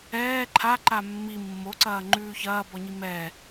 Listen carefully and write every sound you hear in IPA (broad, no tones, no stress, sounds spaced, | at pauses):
ɛː ǃʰ a ǃ a mː i mː o ǀ ɐː ŋ͡ǃ ʉː ç ɐː b ɔ ɲ i m ɛ